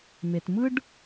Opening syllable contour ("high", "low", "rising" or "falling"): low